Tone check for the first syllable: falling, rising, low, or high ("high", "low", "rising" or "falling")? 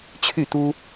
falling